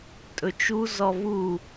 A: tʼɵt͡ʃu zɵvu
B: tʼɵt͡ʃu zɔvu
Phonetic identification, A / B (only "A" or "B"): B